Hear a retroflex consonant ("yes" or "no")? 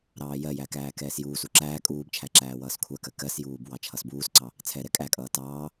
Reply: no